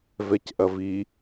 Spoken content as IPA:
vɛcʔɐvi

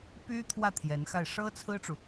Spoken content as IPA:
py˥t̪ʰwä˥˩ t̪ʰjɛ˧˥nxa˥˩ɪ̯ ʂɤ˥t͡sʰɹ̩˥ʈ͡ʂu˨

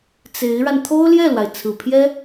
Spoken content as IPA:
t͡se˧˥ɪ̯ɻa˧n t̪ʰo˥ʊ̯ljɛ˥˩lwa˩ɪ̯ t͡sʰɹ̩˨˩pʰjɛ˥

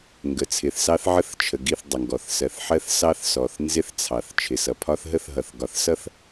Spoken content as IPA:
ŋɡə˨ t͡sʰɪ˨θsɑ˦θ ʕə˦θt͡ʃʰə˨ɡi˦˨θ dˤə˨ŋɡɔ˨θsɜ˨θ ħɜ˦θsɑ˦θsɔ˨θ nzɪ˦θt͡sʰɑ˨θ t͡ʃʰɪ˨sʌ˨pʰɒ˦θ ɦə˦θɦʌ˨θ ɡɒ˨θsʌ˦θ

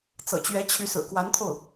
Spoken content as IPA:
t͡sɤ̰˨˩t͡ɕɥɛ˧˥t͡ɕʰy˧˥ sɹ̩˨˩kwa˧˥nt̪ʰo˥˩ʊ̯

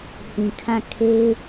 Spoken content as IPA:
hĩ˨kʰã˦˨ kʰe˦ɪ̯

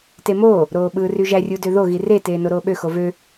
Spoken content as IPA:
temoː | ɾoːɓɯːryʒæ rʲudøðo ɣire teːnoɾoːɓø xovø

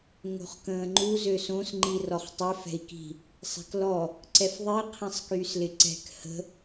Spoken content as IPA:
ŋo̤χkə̃ːŋ͡ǃu zøsõs ŋ͡ǃirɔχtˤɪ fɛ̤i̯ki̤ | sˤɛ̤klɔ | ǀɛfðˤi qʰĩsˤkyːslɪǀɛ̤k hə̤

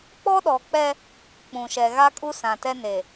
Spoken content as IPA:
k͡pɔ˦ɗɔ˨k͡pɛ˦ | k͡pũ˨ʃɛ˨ɣa˦kʼu˦ sã˨tɛ˦ne˨

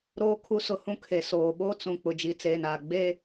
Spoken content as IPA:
ɾoː˦kʰu˦ sʊ˦hũ˦ kʰe˨ soː˨ɓoː˦ t͡sũ˨k͡pʊ˨ d͡ʒi˨t͡seː˨naː˨ ɡ͡be˦

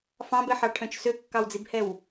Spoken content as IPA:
fɑ̃bɛħɑʈʰœ̃t͡ʃ søkːɑwd͡zibhɛw

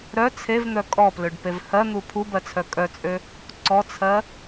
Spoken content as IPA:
ɾœ t͡sʰevn̪œ kʼɔpløɖpev hɜn̪u pʰubɜt͡sʰœ kʼœt͡sʼø | ǀɔt͡sʰɜ

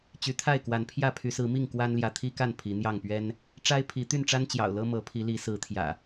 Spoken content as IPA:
t͡ɕy˨˦t̪ʰa˥˨ɪ̯kwa˨˦npʰjä˥˨ pʰy˨˦sɹ̩˨˦mi˥˨ŋ kwa˦nljä˨ t̪ʰi˦ka˥˨n pʰi˨˦n̪jɑ˥˨ŋpɥɛ˦n | ʈ͡ʂa˦ɪ̯pʰi˨˦ t̪y˥˨nʈ͡ʂa˦nt͡ɕjɑ̰˨˩ʊ̯lɤ˦ mɤ˨˦pʰi˨˦li˨˦ sɹ̩˨˦t̪ʰjä̰˨˩

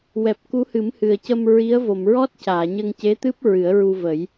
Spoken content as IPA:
wɛ˨˩p̚ku˧˥ hɨ˨˩˦mhɨ˨˩ə̯cə˧m ɹi˧˥ə̯vo˨˩˨m ɹɔ˦˥t̚ caː˨˩˨ɲə˧ŋce˧˥t̪ɨ˦˥p̚ ɹɨ˨˩˦ə̯ɹu˧və˨˩˦j

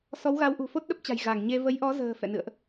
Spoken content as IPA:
sɔ˨˦wɣa˨˦wʔṳ˨˩ fo˦˥t̚ɗə˦˥p̚t͡ɕa̤˨˩j ɣa˧˩ŋɲe˧ və˨˦jʔɔ˨˦zə̤ː˨˩ fɛ̰˧˨nɨ̰˧˨ə̯ʔ

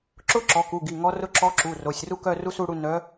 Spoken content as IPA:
ǁʊ˥ ǁɔ˩˧˩ku˩˧˩ ɡi˩˧˩ŋɔ˧˥rʊ˥˧ ǁɔ˧˥ǁu˩˧˩ ro˩˧˩sʲru˥ kœ˥˧ru˥su˥˧ɽu˥˧ nœ˧˥

